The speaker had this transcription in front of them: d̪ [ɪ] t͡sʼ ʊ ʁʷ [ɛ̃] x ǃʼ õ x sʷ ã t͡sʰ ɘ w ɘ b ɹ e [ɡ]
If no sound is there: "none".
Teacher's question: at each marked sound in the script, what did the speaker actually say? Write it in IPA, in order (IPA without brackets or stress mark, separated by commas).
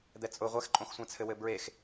ɛ, ɛ, x